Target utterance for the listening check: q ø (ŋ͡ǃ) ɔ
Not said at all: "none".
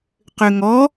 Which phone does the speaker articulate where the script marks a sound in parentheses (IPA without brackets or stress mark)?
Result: ŋ